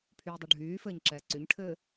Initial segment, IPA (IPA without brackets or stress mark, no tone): pʰ